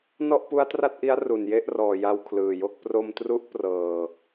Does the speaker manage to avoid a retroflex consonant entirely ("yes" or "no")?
yes